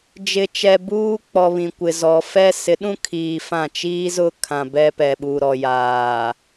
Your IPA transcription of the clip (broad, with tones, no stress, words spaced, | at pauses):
d͡ʒɪ˨t͡ʃɛ˨ buː˦k͡pɔ˨ βĩ˨kʷɪ˨ zɔ˨ fɛ˦ sɪ˨˦ɗũ˦kʰiː˨ fã˦˨ t͡ʃiː˦zʊ˦kʰã˨ bɛ˦pɛ˨ ɓu˨ɾɔ˨jaː˨